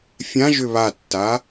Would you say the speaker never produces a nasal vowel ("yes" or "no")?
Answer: no